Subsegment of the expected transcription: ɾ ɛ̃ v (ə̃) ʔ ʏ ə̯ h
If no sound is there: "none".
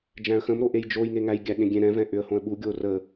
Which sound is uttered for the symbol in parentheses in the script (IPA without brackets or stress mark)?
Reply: ɛ̃